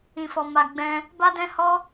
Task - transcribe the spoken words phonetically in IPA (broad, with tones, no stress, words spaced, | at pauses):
ĩ˨fɔ˨ ma˨ ɡ͡bɛ̃˧ | ba˦dɛ̃˦hɔ˦